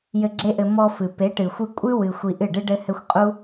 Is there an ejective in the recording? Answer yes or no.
yes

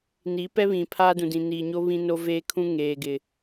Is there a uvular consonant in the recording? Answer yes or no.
no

